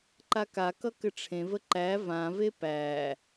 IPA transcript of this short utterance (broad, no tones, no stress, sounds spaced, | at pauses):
ǃ a k a k ʌ k ɘ ʈ͡ʂʰ ẽ v ə ǃ æ v ã v e p æ